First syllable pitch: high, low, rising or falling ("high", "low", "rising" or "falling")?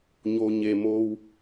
low